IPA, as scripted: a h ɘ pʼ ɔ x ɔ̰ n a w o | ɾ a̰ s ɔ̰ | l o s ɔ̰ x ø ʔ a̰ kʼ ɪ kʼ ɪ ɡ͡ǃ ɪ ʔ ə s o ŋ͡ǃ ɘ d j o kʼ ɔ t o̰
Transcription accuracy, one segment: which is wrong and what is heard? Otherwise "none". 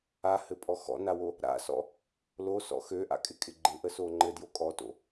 none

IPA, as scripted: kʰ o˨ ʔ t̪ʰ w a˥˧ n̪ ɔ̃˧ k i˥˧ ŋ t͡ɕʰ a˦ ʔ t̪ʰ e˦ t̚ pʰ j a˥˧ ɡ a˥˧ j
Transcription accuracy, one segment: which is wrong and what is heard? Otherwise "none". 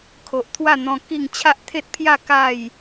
ɡ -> k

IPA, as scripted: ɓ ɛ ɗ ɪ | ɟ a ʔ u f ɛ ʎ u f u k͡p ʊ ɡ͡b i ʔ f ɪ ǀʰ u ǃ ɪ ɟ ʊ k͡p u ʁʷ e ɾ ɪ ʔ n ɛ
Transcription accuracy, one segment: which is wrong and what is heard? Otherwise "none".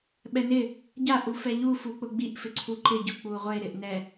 ɗ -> n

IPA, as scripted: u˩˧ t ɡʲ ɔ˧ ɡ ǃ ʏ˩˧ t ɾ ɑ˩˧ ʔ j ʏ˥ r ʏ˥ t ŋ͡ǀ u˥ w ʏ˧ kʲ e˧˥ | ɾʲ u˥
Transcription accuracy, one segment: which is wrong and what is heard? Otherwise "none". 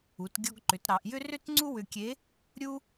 none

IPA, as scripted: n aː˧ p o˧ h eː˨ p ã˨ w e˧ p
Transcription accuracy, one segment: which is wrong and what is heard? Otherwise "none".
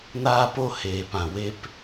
none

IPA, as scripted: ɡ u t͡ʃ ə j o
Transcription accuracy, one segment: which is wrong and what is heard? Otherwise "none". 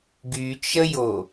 u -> y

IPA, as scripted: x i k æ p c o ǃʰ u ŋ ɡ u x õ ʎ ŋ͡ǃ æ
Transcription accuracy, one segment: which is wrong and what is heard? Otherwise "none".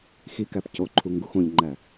none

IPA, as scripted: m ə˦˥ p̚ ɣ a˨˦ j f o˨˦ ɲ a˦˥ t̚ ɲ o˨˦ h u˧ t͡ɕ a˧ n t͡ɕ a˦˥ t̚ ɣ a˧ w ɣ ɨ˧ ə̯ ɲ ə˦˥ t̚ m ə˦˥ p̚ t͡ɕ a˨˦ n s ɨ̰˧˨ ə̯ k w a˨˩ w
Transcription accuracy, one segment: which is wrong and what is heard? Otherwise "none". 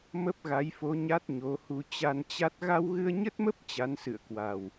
none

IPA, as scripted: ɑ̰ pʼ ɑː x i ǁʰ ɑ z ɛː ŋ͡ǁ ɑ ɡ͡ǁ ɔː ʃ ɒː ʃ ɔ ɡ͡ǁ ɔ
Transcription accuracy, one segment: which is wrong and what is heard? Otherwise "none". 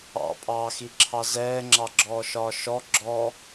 none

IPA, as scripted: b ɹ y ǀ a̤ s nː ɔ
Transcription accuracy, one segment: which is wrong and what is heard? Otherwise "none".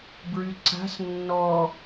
none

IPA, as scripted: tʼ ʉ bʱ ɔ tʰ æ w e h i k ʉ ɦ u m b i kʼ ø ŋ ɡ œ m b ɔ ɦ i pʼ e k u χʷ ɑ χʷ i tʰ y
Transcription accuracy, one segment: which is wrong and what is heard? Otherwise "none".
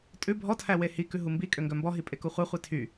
none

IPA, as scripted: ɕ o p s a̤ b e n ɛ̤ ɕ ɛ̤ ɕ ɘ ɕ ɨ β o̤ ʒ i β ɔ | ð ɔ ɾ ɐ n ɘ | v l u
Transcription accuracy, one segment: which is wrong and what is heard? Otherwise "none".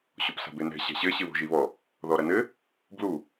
v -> b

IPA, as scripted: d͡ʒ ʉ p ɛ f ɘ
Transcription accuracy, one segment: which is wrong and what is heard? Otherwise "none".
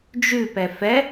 ɘ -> ɛ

